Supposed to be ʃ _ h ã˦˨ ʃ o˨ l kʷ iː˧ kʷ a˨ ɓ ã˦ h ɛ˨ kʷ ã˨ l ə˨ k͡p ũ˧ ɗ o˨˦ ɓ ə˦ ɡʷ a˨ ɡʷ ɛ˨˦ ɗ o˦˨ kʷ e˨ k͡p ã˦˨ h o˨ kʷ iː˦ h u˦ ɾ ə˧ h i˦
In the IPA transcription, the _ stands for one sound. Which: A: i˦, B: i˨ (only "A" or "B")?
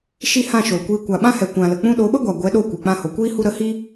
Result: A